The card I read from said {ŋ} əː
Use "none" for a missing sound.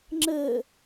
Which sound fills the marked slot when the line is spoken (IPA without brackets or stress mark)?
ŋ͡ǁ